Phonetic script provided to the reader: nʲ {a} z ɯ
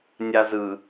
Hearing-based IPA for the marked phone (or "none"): a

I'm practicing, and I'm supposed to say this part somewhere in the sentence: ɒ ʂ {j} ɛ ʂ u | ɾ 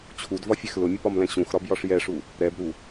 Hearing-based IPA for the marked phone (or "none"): j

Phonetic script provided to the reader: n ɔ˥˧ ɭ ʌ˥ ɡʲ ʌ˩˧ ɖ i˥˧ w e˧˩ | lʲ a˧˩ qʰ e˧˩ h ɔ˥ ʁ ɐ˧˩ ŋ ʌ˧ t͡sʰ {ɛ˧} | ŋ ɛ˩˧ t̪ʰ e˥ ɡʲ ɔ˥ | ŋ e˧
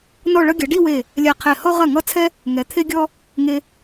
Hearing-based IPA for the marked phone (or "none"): ɛ˧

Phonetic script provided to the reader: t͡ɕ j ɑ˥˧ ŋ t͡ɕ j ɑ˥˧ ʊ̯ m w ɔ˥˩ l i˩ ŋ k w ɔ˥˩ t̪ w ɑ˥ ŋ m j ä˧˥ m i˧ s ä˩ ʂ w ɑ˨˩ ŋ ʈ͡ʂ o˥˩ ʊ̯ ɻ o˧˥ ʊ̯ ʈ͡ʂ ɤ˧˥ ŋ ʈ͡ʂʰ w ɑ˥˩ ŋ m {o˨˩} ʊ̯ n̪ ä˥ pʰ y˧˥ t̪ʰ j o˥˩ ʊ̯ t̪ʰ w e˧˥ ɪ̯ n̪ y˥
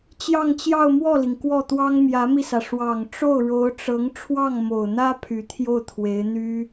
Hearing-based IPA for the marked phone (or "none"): o˨˩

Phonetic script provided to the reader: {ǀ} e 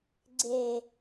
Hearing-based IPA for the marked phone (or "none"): ɡ͡ǀ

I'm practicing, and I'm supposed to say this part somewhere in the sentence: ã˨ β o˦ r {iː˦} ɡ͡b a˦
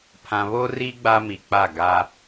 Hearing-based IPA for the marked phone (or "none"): i˦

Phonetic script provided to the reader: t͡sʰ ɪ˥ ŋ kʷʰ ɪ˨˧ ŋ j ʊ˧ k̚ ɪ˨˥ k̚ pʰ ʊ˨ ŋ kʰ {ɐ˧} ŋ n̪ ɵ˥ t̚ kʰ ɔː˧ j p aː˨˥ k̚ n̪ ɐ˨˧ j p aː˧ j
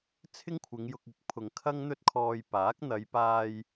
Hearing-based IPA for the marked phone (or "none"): ɐ˥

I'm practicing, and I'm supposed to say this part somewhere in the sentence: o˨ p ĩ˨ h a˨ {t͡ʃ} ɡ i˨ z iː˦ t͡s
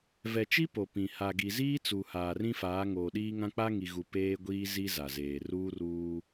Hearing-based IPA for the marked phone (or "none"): none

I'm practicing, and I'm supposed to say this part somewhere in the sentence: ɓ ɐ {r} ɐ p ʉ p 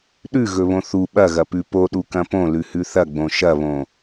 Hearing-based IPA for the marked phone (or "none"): ɣ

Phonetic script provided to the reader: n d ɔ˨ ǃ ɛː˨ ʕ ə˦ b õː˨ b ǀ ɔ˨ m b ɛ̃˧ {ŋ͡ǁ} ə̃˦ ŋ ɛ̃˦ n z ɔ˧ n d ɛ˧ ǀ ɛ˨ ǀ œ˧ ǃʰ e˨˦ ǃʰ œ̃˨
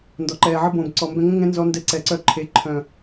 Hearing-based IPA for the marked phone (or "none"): ŋ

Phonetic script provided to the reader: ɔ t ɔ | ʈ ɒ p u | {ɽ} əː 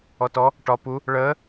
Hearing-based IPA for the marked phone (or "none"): ɭ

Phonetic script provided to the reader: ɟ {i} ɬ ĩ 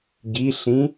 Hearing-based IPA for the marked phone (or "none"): i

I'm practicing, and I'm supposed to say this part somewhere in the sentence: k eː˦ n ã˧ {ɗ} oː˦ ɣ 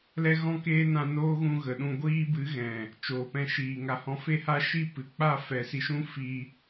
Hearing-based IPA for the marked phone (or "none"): n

